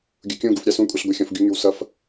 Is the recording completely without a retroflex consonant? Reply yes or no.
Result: yes